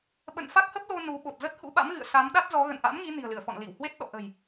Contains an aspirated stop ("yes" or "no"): no